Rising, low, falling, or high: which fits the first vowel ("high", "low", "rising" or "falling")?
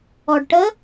low